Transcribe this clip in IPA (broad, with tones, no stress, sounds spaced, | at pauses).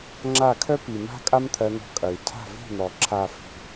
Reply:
ŋ͡ǁ a˦˨ kʰ œ˦ p i˨ m a̤˦ kʼ a˦ m t̪ʰ ɜ˧ n̪ ɔ̤˧ kʼ ɐ˨ y̯ tʰ a̤˦˨ v i̤˦˨ n̪ ɔ˨ ǁʰ a˨ f i̤˨